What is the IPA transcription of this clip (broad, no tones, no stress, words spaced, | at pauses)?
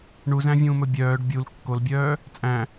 ɳuzæ̃vʲũːmɵ bʲœːɖ bʲul kːolbʲœː | t͡sʼæ̃